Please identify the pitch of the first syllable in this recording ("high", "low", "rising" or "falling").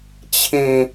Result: falling